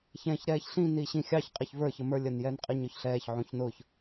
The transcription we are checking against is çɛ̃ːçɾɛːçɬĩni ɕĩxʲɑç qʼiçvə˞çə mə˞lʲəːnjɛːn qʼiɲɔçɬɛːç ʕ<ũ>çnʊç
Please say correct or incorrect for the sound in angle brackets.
correct